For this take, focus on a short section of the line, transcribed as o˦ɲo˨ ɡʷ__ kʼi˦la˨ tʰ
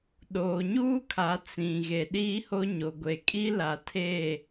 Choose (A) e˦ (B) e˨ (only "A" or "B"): B